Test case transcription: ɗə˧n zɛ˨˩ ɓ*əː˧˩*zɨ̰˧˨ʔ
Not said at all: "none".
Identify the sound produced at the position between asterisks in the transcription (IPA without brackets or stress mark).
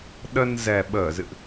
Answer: əː˧˩